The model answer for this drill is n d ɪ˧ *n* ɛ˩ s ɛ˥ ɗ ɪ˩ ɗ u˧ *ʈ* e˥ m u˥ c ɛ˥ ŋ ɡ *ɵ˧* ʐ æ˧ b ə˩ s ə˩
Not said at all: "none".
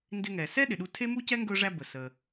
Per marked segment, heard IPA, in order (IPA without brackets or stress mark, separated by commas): ŋ, tʰ, ɵ˧